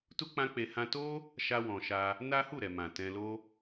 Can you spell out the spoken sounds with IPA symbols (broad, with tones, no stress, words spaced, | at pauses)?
tu˦ k͡pã˦ k͡pe˧ hã˧to˦ | ʃa˧wɔ̃˨ ʃa˧ | na˦hu˦˨ɾɛ˨ mã˨tɛ̃˧lo˦